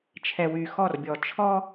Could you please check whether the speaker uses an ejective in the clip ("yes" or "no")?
no